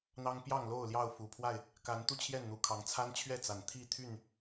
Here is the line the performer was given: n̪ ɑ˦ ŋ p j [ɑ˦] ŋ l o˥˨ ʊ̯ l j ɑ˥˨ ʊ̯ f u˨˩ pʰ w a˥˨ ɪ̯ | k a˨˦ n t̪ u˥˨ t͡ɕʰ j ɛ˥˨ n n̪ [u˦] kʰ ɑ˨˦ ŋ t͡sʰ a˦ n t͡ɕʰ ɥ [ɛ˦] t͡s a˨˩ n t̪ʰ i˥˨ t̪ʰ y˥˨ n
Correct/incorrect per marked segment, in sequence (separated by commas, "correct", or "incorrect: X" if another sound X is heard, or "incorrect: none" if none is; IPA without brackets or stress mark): incorrect: ɑ˥˨, incorrect: u˨˩, incorrect: ɛ˥˨